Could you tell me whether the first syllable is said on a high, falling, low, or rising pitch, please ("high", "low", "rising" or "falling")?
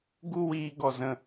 high